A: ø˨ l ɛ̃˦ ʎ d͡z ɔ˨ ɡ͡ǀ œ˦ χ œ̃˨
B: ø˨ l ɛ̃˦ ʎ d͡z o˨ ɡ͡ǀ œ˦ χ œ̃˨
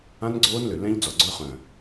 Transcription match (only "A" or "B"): A